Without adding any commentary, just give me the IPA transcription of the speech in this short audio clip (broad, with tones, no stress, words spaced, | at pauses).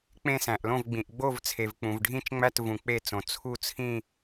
k͡pẽ˥˧sæ̃˨ʔlõ˥˧vɡ͡bĩ˨ʔ ɡ͡bo˥˧vt͡sʰe˨vk͡pũ˨v ɖʱĩ˥˧t͡ʃŋ͡mæ˥˧t vũ˨k͡pe˥˧t͡sõ˨ t͡sʰu˥˧t͡sʰĩ˥˧